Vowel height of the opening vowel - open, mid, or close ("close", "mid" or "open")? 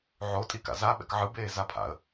mid